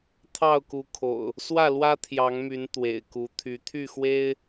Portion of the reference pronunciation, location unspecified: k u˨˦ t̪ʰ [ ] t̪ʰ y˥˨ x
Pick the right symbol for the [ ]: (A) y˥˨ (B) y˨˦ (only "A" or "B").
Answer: B